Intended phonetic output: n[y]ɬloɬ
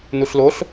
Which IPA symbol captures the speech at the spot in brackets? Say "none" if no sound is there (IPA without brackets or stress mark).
u